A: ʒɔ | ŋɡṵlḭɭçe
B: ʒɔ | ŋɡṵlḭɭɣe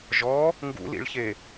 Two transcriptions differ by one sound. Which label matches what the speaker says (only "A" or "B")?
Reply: A